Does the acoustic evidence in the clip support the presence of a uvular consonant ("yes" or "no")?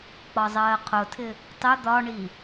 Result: yes